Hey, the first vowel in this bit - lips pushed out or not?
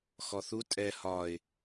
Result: yes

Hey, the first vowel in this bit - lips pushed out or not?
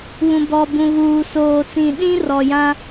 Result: yes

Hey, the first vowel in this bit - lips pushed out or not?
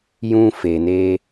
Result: yes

